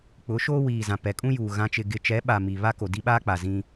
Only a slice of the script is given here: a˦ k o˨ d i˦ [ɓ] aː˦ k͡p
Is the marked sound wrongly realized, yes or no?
no